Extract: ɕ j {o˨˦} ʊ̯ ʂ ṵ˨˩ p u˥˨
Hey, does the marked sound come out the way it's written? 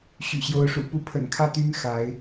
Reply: yes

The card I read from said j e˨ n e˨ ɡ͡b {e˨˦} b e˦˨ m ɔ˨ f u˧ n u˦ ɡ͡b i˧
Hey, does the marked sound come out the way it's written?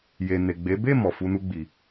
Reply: yes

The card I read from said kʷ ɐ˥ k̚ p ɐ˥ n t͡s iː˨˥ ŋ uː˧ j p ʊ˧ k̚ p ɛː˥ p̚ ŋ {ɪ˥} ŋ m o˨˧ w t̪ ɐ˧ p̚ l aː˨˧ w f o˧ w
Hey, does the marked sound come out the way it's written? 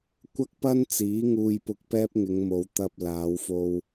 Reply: no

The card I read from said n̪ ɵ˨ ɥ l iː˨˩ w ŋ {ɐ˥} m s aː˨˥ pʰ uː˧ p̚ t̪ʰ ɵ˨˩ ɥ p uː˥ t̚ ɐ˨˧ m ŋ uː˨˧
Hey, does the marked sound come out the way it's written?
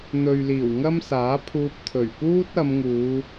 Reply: yes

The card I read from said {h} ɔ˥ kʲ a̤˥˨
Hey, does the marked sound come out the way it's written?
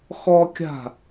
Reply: no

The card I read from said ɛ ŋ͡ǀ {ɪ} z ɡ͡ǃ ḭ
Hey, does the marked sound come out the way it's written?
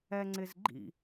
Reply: yes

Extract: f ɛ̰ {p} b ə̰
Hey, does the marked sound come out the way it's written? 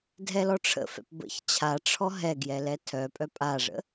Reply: yes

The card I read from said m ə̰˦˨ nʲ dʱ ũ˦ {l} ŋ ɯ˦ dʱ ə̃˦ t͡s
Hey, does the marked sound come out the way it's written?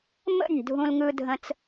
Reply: yes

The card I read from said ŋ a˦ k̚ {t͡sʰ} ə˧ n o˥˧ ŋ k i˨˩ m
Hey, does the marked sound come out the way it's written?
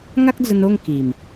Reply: no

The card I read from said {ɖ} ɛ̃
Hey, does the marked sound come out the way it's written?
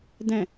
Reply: no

